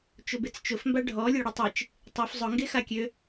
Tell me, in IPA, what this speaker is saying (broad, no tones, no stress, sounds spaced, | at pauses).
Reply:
t͡ʃ ʊ b e t͡s t͡ʃ ʊ f m b a ɖʱ ɔ lʲ ø ɽ ʊ tˤ e t͡ʃ | tˤ y f zˤ ʊ ŋ ɡ e x a kʲ ø